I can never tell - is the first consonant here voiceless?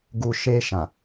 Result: no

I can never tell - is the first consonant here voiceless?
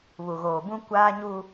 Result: no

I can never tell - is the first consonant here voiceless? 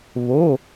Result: no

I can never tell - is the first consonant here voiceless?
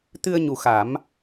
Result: yes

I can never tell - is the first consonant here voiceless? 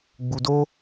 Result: no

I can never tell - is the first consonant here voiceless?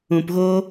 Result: yes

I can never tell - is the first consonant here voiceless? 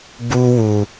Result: no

